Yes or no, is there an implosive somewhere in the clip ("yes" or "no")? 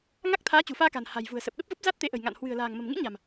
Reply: yes